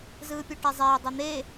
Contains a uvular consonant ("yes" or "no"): no